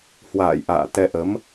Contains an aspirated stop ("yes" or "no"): no